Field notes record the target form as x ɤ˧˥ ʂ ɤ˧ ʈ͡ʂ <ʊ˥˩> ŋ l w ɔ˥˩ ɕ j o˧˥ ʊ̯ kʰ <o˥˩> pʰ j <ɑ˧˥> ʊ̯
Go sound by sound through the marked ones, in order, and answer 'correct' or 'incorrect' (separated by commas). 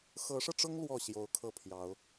incorrect, incorrect, correct